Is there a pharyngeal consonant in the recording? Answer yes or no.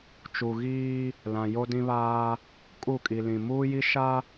no